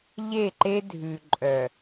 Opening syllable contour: falling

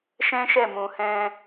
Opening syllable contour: high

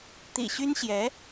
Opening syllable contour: low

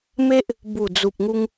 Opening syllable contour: high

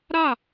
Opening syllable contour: falling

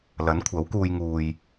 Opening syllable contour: rising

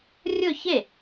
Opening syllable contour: falling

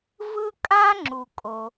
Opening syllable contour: high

